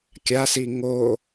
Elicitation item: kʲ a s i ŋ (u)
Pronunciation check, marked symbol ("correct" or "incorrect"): incorrect